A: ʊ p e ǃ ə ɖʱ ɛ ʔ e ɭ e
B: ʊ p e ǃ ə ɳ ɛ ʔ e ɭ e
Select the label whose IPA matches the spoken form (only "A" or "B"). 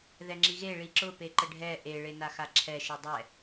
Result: A